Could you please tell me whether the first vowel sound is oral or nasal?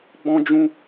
nasal